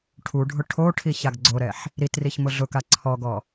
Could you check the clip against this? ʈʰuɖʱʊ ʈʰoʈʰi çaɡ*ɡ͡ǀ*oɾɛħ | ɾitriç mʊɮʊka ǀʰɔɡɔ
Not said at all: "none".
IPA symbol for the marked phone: ɡ͡ǀ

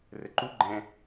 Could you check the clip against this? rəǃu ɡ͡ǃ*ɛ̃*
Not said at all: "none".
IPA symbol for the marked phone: ɛ̃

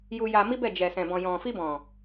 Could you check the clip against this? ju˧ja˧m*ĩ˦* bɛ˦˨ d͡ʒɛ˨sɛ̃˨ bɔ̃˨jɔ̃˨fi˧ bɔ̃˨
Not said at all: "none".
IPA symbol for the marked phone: i˦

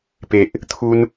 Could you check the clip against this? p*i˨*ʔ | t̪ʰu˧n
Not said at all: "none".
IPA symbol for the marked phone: e˨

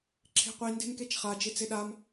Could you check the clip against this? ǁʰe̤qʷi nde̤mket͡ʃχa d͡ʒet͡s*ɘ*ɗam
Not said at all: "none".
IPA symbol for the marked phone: e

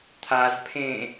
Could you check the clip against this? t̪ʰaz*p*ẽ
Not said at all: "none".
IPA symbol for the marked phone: pʰ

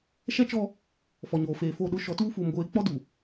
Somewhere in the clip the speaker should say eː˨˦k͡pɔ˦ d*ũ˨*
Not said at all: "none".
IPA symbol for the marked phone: u˨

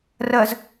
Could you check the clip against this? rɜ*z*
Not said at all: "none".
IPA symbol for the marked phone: z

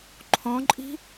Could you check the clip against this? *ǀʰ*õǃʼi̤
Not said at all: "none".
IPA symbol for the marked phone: ǃʰ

